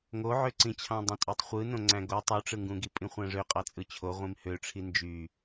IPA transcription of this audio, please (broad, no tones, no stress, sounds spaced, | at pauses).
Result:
ŋ o ʕ ø ǀ ĩ t͡ɕʰ ɑ̃ dˤ õ tʼ ø tˤ χʷ ɯ n õ ŋ͡ǀ æ̃ ɡ o tˤ u ʈ͡ʂ ɯ ŋ ɡ ũ ɡ i pʼ ĩ χʷ æ̃ ʐ ø qʼ ɑ t͡sʼ ɯ t͡ɕʰ o ʁʷ ĩ m h ø ʈ͡ʂʰ i n d͡ʒ y